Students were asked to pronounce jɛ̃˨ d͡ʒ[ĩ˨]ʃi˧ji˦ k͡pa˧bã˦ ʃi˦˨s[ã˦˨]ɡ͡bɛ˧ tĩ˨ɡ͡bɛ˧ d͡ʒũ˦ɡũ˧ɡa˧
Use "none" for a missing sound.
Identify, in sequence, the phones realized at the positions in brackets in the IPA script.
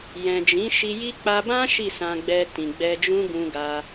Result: ĩ˨˦, ã˧

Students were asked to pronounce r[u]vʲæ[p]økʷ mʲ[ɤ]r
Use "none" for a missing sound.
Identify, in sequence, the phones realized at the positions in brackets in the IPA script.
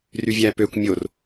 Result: y, p, o

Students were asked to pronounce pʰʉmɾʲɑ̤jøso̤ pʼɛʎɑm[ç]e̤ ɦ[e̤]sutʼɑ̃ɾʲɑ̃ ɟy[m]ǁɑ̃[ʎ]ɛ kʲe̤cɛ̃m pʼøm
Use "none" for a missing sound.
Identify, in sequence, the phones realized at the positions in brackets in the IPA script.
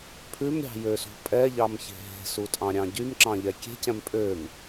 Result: ç, e̤, m, ʎ

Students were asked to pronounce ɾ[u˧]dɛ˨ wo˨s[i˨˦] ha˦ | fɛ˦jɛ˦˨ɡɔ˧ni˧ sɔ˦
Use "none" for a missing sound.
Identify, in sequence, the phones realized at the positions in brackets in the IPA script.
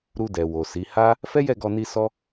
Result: u˧, i˨˦

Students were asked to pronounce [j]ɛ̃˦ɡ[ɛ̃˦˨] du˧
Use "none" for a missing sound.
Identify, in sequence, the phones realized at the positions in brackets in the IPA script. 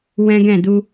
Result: w, ɛ̃˦˨

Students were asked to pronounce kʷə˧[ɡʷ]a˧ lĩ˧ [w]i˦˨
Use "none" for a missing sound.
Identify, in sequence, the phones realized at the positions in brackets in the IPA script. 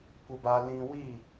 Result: b, w

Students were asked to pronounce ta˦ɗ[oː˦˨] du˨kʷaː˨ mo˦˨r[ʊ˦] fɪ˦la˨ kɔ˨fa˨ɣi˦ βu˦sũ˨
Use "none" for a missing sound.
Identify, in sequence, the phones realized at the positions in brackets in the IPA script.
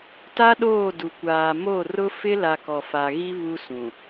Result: oː˦˨, ʊ˦

